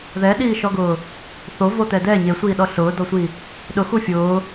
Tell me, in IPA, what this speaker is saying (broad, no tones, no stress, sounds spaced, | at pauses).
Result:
ð ɛ ɗ iː ʃ ɔ ɡ ʊː | θ o v o t̪ ɛ d ɛ ɲ e sʷ iː ɗ ɔ ɬ ʊː d ɔ sʷ i | ɗ ʊ x u fʲ ʊː